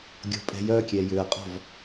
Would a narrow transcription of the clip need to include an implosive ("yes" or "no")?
no